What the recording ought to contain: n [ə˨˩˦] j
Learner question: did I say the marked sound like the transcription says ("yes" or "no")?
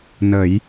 yes